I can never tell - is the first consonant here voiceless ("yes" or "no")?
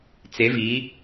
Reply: yes